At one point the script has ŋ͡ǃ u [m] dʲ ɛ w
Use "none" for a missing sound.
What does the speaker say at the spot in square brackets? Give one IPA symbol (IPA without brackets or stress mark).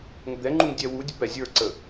ŋ